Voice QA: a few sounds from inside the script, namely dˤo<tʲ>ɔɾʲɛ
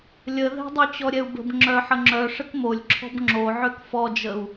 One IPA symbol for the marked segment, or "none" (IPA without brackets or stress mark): t͡ɕ